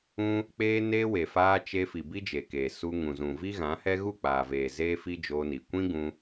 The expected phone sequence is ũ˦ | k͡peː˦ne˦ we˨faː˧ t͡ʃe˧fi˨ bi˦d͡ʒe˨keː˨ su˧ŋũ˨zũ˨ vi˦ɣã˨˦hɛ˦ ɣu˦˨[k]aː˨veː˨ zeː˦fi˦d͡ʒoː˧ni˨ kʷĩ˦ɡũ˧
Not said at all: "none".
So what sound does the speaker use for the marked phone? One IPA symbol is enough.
k͡p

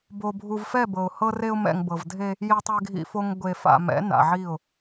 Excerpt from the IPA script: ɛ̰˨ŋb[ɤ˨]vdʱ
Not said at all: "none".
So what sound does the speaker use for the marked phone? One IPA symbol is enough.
ɤ˨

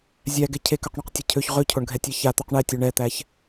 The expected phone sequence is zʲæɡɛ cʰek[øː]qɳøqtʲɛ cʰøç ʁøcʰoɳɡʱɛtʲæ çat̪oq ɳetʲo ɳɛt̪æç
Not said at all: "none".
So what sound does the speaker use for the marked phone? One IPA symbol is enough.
ø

